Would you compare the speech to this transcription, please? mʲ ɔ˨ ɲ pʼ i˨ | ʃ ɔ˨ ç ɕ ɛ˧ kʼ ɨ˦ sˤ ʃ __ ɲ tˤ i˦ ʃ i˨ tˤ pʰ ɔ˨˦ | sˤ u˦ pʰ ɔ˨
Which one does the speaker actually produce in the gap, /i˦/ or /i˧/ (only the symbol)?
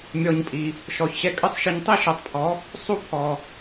i˧